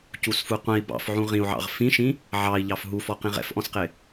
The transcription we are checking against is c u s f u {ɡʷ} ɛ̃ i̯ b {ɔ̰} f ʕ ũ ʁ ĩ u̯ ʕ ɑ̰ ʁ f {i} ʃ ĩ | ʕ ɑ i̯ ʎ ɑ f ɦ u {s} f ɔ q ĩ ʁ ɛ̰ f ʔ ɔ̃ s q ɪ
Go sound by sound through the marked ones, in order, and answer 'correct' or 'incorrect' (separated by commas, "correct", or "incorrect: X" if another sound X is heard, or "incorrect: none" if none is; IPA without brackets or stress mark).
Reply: incorrect: qʷ, incorrect: ɑ̰, incorrect: ĩ, incorrect: none